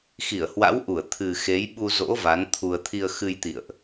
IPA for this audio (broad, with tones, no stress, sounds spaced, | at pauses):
x i˧˩ ə̯ h w a̰˧˥ w ʔ u˧˩ ə̯ t̪ʰ ɨ˨˩ x e˨˦ j ɓ u˧ z o̰˧˥ v a˨˦ n t̪ʰ u˧ ə̯ t̪ʰ i˧ ə̯ x ɨ˧ j t̪ ḭ˧˨ ə̯ ʔ